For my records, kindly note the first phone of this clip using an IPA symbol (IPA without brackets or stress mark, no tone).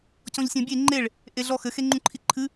c